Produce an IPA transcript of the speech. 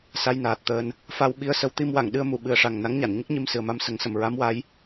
s a˧ j n aː˨˩ t̚ t̪ əː˧ n | f a˧ w ɓ i˧ ə̯ s ə˧˥ w t̪ i˧ m w a˨˩˨ ŋ ɗ ɨ˧ ə̯ m u˨˩˨ ɓ ɨ˨˩ ə̯ ʂ a˨˩ ŋ n a˧˥ ŋ ɲ a˨˩˨ n ɲ ə˦˥ k̚ ɲ i˧ m s ɨ˨˩ ə̯ m a˧ m s ə˨˩˦ ŋ s ə˨˩˨ m ɹ a˧˥ m w a˧˥ j

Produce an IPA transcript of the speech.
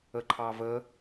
ə ǃʰ ɑ v ə

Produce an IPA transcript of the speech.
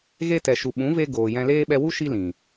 ɣ e˧ t ɛ˨ ʃ u˨ ɓ ũ˨˦ v e˧ ɡ oː˨ j ɛ̃˧ l eː˦ ɓ ɛ˧ w u˦ ʃ i˧ l ĩ˨

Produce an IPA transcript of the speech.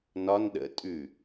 n ɒ n ɗ ə̰ tʼ ʉ

